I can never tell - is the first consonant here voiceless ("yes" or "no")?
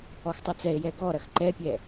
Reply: yes